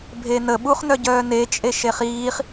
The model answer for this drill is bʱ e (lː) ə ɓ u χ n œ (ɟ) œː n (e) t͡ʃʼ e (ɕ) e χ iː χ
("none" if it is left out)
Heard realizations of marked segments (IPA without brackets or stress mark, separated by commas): n, ɟ, e, ʃ